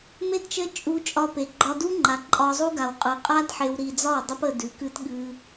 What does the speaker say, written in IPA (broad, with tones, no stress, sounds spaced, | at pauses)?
m e˦ d t͡ʃ ə˦ t͡ʃʼ u˧ t͡ʃʼ ɒ˧ p e˨ ɡ͡ǃ ɒ˧ d u˦ ŋ͡ǃ a˨ ǃʼ ɒ˧ zˤ u˦ ɡ a˨ w qʼ ɯ˨ qʼ a˦ d ħ e˧ w ɾ i˧ d͡z ɒ˦˨ w dˤ ə˦ p ə˧ d ʉ˨˦ k ɨ˦ t ɠ ɨ˧